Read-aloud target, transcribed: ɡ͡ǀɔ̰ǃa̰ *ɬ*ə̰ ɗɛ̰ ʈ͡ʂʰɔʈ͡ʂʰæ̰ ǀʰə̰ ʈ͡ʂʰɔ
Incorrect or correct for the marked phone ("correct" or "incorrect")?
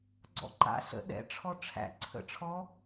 correct